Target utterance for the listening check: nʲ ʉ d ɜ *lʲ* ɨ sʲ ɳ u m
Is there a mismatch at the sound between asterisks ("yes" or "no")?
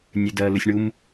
yes